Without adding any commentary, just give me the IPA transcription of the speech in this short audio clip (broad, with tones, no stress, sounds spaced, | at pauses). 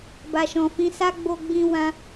b a˨ ʃ ɔ̃˨ f ĩ˨˦ s a˦ ɡ͡b o˧ ɡ͡b ĩ˧ w ã˧